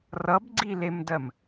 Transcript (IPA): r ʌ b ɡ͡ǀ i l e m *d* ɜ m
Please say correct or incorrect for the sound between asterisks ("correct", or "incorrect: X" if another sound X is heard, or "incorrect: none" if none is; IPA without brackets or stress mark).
correct